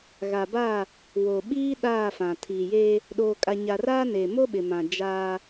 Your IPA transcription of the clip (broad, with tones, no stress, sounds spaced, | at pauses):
ɣ a˨ b a˦˨ | w o˨ ɓ iː˦ ɗ aː˦˨ f ã˨ tʰ iː˨ j eː˦ | ɗ oː˨ kʼ a˨ ɲ a˨ r aː˦ n eː˨ m o˦ ɓ ɪ˨ m ã˨ d͡ʒ aː˦